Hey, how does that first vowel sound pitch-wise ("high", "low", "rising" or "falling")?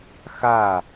falling